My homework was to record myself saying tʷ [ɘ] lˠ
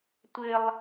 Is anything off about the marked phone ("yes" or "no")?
no